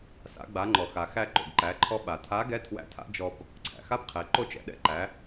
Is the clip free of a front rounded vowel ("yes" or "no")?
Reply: yes